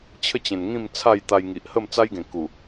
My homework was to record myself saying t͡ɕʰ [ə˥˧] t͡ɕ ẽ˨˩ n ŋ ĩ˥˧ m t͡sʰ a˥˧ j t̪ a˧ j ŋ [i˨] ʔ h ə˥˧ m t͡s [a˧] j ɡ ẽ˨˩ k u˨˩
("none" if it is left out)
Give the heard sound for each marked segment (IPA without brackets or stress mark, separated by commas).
ə˥˧, i˨, a˦